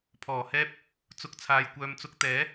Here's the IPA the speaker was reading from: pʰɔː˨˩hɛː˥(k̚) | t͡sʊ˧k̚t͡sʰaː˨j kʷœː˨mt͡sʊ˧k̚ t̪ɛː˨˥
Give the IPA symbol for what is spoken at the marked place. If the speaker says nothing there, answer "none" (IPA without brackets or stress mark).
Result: p̚